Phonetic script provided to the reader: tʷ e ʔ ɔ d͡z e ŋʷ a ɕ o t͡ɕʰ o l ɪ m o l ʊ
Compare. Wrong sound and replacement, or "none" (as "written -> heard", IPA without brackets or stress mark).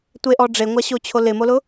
d͡z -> ɖ͡ʐ